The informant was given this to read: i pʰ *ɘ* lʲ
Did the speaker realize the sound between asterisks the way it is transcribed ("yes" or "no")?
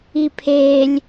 no